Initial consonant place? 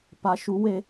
labial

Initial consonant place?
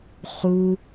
uvular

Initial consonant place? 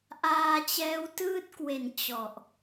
glottal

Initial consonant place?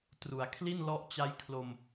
alveolar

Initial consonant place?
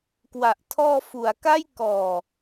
velar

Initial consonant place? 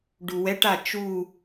retroflex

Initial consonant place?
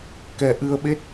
velar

